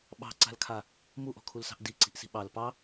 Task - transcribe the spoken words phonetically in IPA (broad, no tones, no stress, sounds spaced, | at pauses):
ɓ ɑ̤ ǀ a̤ l kʰ a | m u ʔ ɔ̤ kʰ u l s ɑ̤ ʔ d i ǀ i̤ ʔ s i̤ ɓ ɑ l p ɑ